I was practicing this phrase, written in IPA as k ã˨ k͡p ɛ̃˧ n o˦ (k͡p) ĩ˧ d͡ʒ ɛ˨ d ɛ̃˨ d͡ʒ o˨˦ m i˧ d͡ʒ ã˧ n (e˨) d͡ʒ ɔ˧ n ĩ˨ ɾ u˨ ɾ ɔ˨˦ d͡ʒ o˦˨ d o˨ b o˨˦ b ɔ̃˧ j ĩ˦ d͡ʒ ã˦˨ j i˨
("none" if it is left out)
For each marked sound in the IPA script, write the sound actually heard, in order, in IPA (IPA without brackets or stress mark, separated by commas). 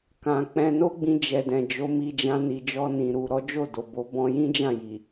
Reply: ɡ͡b, i˨